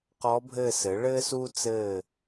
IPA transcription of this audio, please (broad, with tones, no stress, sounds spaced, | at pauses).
q ɔ˧˥ bʱ ɘː˦˨ s ɘ˩˥ ɭ ɘː˥ s uː˥ t͡s ɘː˦˨